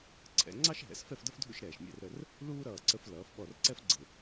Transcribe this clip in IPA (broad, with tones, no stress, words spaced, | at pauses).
ǀʰɛ̰˩˧ ŋ͡ǀɑ˥ʃɦɛ̰˩˧s fɛ˥˧fdʌ˥fdʱṵ˥˧ʃ ɾɛː˧˩ʃmʲɛ̰˥˧rɾə˥˧r | luː˥ɾʌː˧˩ǀə˧f lʌː˩˧fɓɔ˧˩rǀɛ˥fɡ͡ǀɪ˧˩